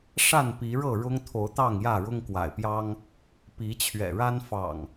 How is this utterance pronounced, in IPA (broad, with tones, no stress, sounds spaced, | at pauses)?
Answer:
ʂ a˥˨ n p i˨˦ ɻ ɤ˥˨ ɻ ʊ˦ ŋ t̪ʰ o˨˦ ʊ̯ t̪ ɑ˥˨ ŋ j ä˥˨ ɻ ʊ˦ ŋ k w a̰˨˩ ɪ̯ p j ɑ˦ ŋ | p i˨˦ t͡ɕʰ ɥ ɛ̰˨˩ ɻ a˦ n f ɑ̰˨˩ ŋ